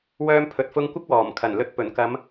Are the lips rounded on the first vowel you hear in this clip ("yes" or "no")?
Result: yes